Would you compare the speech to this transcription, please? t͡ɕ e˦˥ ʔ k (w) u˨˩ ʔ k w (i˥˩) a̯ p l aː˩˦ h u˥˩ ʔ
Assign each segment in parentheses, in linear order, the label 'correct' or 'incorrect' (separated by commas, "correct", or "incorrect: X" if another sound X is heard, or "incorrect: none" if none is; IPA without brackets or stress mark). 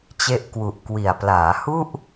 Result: correct, incorrect: i˨˩